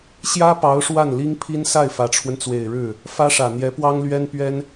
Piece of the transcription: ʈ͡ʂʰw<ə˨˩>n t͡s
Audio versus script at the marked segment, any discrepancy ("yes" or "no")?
yes